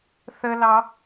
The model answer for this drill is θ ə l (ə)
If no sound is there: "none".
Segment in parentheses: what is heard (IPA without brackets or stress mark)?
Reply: ɑ